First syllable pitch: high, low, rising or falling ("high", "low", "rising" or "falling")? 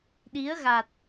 rising